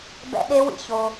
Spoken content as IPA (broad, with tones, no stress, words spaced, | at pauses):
bɛ̰˦ɗe˦wḭ˨ço˦